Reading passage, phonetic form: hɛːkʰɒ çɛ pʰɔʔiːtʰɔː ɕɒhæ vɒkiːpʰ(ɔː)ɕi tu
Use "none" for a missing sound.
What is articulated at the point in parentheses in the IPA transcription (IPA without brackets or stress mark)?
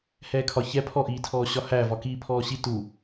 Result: ɔː